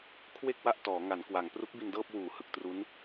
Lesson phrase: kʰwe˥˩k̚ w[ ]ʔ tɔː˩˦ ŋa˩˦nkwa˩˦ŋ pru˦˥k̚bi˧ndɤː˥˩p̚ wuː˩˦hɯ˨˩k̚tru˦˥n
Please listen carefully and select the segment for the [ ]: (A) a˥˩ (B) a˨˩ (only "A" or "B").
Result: A